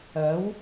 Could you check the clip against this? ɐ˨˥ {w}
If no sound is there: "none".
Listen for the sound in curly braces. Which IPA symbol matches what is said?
w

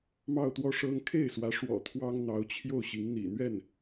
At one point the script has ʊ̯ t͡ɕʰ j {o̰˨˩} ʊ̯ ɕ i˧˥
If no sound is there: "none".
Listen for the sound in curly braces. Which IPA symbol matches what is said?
o˥˩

